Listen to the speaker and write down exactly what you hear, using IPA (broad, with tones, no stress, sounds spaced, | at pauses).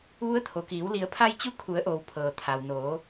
ʋ u˧˥ ə̯ t̪ʰ o˩ k iː˩˧ w l i˩˧ ə̯ pʰ a˧ j t͡ɕ u˧˥ kʰ u˩˧ ə̯ ʔ oː˩ w pʰ ɤː˩ t̪ʰ a˩ w n oː˩˧